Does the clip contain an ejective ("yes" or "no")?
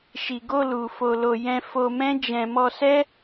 no